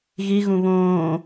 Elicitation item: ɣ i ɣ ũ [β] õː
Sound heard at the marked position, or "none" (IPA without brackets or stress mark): β